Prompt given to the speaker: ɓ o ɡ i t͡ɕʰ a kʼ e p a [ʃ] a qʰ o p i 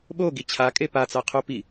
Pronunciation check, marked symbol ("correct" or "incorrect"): incorrect